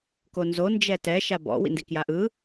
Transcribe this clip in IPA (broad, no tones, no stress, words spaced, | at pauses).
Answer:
konzo nd͡ʒɛtɛ ʃabɔ̰ wḭndikjaʔɯ